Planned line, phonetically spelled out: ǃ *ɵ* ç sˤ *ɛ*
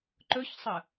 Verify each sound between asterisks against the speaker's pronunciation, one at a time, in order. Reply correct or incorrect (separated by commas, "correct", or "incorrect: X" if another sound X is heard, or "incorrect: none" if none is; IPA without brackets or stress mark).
correct, incorrect: ə